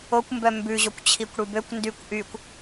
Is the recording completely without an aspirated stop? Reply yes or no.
no